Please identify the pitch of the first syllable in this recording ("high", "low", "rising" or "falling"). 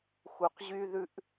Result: low